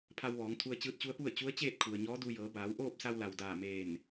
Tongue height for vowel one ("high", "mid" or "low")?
low